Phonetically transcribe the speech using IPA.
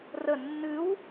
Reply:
rə nːɨw

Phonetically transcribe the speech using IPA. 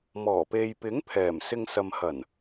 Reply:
mɔː˨˩pe˨jpɪ˨˥ŋ pʰɛː˨˩msɪ˧ŋ sɐ˨mhɐ˨˩n

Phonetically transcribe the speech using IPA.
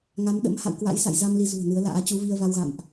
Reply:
ŋa˨˦mɗə̰˧˥m ha̰˧˨wkwa̰˧˥jsa̰˧˨jza˧m li˧zṳ˨˩ə̯nɨ˨˦ə̯la̰ː˧˥ t͡ɕu˨˦vi˧ə̯va˧wɣa̰˧˨mʔ

